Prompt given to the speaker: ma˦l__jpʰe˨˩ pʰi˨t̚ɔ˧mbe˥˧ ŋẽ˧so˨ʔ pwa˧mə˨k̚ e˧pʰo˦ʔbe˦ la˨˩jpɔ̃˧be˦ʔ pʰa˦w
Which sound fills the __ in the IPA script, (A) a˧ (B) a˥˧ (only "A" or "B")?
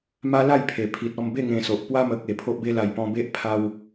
B